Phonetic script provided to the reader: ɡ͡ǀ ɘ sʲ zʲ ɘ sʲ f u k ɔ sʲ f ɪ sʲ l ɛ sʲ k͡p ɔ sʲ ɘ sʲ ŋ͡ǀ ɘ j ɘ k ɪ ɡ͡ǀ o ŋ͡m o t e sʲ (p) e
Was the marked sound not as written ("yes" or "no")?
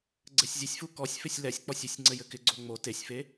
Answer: yes